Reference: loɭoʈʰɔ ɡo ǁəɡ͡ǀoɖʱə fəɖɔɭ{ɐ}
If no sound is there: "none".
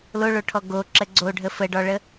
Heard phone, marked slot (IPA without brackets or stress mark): ə